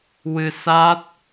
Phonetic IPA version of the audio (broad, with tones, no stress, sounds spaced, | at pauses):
w ɨ˧ s a˦˥ t̚